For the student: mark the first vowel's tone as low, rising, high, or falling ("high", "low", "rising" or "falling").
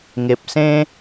low